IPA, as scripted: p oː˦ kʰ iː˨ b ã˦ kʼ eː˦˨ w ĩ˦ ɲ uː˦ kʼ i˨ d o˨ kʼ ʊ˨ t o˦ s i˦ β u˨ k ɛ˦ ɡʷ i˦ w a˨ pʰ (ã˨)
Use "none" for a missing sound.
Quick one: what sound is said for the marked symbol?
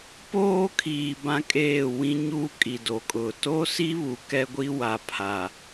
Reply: a˨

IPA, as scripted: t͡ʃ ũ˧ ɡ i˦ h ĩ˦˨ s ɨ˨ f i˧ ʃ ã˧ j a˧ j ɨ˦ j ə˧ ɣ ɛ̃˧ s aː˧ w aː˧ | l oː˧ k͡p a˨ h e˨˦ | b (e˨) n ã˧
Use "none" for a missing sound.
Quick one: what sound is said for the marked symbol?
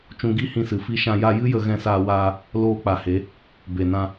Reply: e˨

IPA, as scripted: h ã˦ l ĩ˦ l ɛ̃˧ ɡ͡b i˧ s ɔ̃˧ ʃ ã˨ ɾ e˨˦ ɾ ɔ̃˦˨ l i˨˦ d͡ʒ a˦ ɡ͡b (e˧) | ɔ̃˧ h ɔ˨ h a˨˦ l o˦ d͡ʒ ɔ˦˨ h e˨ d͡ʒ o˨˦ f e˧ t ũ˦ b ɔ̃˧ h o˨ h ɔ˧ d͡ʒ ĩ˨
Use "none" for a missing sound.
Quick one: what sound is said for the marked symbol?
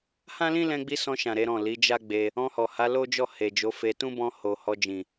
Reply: e˧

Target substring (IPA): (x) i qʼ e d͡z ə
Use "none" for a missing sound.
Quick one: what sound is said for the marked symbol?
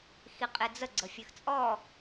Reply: x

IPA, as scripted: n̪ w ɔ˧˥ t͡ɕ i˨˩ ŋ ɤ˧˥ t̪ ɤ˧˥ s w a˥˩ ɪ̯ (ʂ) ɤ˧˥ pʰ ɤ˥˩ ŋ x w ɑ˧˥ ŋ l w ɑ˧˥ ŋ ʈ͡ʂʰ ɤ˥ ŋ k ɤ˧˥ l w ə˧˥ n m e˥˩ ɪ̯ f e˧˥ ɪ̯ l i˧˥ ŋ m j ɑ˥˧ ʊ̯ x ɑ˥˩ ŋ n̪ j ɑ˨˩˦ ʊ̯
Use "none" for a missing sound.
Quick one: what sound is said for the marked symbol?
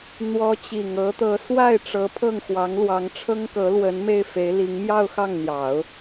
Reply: ʈ͡ʂ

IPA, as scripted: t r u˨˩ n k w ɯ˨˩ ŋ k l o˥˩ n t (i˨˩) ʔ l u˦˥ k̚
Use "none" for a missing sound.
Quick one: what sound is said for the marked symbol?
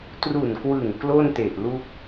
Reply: e˨˩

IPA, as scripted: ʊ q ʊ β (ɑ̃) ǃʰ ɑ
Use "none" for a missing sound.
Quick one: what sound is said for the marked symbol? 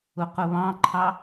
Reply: ɑ̃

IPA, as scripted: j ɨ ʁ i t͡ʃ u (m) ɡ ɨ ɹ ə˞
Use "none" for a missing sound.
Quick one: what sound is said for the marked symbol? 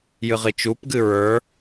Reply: p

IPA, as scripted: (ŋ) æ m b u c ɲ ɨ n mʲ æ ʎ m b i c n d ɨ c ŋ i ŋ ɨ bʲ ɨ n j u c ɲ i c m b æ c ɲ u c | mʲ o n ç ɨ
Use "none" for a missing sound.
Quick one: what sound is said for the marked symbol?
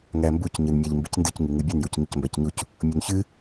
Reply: ŋ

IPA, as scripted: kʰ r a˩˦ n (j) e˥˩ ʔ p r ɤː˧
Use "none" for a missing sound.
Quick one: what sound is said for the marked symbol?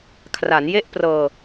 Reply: j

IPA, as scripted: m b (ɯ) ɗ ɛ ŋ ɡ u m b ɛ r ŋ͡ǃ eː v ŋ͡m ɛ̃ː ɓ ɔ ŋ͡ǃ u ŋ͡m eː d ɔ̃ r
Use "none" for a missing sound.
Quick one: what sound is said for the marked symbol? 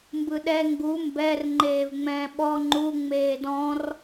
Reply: ɯ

